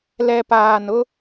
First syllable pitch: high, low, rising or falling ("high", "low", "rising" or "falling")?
low